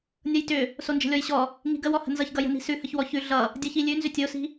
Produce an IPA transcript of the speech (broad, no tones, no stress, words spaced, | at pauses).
nʲʌjtʏ | sond͡ʒə̤lʲɔjɕɔ | ŋi̤ɡəwɔ hə̤nzʌçɡʌ jə̤ni̤sʉ həçwɔçʉ ɮʌ | dʲɤçilʲʉnzʏ tʲosi̤